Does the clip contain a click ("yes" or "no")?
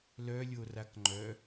yes